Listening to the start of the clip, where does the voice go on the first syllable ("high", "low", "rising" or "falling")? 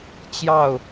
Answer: falling